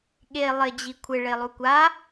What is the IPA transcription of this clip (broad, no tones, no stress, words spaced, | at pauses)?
ɠe lˠɪ d͡ʑikʷʰɪ ɭelˠukʷa